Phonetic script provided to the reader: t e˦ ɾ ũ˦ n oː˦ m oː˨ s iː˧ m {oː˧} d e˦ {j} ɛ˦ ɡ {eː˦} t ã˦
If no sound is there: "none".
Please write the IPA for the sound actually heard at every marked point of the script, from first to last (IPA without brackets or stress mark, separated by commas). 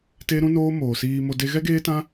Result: o˧, ɣ, eː˦